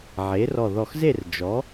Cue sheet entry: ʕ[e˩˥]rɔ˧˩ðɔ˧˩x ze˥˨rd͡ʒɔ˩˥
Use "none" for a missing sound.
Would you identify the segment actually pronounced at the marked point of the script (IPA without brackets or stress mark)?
e˩˥